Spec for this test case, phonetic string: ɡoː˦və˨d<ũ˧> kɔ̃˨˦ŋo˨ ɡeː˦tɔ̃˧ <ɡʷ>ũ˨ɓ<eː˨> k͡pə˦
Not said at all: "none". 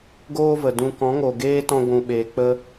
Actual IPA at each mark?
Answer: ũ˧, ɡʷ, eː˨

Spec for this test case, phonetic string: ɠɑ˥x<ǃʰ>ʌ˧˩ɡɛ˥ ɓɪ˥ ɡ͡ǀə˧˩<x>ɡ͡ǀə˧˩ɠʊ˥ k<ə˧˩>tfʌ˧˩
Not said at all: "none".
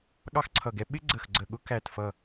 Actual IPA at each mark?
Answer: ǀʰ, x, æ˧˩

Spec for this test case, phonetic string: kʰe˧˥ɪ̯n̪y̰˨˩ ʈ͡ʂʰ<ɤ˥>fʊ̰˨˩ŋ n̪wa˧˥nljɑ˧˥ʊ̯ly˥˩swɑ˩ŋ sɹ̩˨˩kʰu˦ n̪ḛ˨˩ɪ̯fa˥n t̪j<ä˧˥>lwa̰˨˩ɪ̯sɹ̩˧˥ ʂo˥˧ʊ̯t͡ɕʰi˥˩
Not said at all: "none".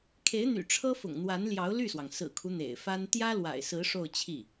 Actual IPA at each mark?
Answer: ɤ˥, ä˥

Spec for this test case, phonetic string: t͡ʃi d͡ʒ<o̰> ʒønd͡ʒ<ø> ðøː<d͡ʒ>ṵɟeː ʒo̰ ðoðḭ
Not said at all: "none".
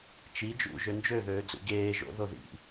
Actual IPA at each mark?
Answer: ṵ, ø, d͡z

